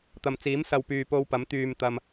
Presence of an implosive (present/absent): absent